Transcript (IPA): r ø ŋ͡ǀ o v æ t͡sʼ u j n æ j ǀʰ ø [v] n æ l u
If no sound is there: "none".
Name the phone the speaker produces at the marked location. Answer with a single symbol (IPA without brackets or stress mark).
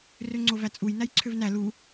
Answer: v